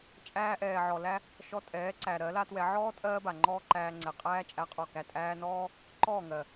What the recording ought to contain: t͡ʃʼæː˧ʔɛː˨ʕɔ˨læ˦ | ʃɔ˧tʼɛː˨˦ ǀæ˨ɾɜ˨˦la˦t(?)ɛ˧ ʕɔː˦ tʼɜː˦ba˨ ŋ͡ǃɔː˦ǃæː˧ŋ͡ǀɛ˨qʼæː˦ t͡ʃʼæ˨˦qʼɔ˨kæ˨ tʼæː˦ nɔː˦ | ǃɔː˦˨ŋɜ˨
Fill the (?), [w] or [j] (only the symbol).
w